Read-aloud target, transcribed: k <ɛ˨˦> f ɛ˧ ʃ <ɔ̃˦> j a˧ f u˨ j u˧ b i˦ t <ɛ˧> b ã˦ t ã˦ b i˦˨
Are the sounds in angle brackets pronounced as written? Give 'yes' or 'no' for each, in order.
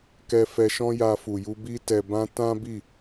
no, yes, yes

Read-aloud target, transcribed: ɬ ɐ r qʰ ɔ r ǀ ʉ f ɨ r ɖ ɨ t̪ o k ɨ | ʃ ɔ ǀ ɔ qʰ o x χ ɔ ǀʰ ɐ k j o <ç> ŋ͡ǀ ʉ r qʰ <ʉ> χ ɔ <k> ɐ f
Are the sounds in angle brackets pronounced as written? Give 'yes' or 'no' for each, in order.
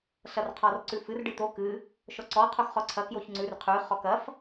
yes, yes, yes

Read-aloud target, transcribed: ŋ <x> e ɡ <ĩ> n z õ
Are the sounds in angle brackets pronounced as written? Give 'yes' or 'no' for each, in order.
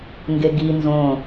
no, no

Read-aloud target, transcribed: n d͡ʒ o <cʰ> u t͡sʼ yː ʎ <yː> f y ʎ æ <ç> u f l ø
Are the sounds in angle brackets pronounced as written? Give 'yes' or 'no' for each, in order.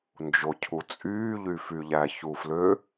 yes, no, yes

